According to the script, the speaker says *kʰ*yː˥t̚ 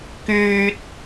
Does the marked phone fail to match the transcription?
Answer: yes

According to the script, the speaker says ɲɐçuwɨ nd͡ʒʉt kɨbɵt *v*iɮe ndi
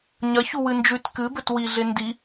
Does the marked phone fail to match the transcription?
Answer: yes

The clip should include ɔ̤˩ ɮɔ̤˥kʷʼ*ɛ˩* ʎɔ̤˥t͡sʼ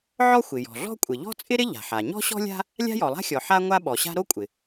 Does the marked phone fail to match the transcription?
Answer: yes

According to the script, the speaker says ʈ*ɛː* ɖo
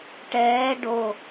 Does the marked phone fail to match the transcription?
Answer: no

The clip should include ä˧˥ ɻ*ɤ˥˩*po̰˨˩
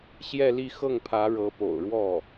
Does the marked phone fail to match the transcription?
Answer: yes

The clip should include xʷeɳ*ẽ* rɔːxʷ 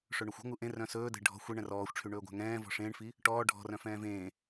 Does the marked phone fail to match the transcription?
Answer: yes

